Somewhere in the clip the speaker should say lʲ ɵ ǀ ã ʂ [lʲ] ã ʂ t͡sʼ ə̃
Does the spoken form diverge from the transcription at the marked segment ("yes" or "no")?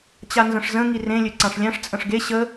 no